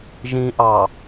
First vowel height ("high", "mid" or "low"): high